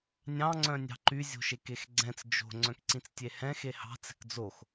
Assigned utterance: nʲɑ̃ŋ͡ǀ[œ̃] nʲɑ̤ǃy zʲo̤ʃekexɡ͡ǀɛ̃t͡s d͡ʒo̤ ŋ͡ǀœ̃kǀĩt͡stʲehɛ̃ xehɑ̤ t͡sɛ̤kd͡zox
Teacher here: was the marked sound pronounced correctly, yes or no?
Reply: yes